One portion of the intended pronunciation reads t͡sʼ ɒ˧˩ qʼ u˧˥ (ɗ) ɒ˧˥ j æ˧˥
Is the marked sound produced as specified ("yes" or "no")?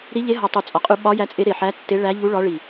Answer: no